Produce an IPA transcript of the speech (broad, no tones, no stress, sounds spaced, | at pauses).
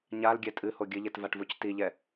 ɲ a l ɡʲ ɛ tʼ ɨ h o ɡʲ ɨ ʎ e t v a ʈ v u c t i ʎ ɛ